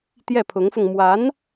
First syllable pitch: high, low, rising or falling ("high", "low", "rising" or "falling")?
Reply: falling